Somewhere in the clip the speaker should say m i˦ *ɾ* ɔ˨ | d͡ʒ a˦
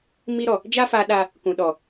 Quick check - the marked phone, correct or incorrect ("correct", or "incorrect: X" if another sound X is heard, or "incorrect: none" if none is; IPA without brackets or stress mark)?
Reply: correct